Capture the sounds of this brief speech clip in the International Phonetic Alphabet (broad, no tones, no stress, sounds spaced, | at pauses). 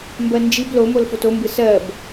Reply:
m b ɜ n d͡ʒ i b l o m o l f o t o m b ɯ s ɜ b